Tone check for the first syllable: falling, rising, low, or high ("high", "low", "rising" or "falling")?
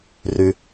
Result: low